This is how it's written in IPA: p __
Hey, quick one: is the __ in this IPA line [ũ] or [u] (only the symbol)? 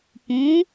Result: ũ